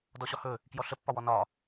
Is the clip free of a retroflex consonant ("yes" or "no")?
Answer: yes